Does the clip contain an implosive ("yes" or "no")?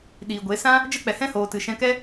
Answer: yes